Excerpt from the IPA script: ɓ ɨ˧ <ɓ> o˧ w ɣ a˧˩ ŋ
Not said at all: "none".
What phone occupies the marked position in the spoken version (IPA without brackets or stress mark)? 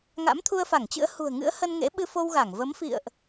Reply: f